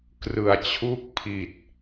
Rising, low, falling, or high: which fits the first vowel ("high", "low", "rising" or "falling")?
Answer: low